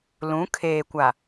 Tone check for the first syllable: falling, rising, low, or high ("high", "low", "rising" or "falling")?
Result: rising